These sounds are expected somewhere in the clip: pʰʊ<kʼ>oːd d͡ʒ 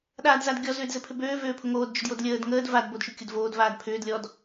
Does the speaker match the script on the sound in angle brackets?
no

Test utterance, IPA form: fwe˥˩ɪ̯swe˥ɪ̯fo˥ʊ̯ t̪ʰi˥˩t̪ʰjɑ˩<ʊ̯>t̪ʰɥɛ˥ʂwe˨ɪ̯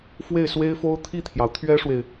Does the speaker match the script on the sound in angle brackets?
yes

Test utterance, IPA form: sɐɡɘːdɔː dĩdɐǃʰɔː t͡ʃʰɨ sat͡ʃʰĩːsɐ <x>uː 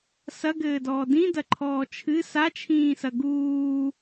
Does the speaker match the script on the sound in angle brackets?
no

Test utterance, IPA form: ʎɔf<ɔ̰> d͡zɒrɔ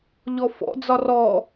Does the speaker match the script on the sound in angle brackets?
yes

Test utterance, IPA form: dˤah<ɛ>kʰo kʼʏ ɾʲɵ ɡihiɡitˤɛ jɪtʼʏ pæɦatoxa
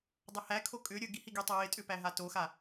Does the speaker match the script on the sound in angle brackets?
no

